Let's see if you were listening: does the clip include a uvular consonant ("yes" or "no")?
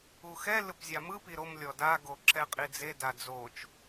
yes